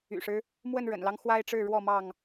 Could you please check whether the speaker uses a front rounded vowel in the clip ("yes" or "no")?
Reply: yes